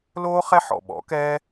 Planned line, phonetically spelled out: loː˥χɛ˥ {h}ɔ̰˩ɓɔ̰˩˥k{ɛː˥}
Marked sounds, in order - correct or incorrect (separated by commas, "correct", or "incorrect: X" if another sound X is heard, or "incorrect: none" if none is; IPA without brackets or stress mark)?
incorrect: ħ, correct